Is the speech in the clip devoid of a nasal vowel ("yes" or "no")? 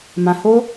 no